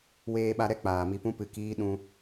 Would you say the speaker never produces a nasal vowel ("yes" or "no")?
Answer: no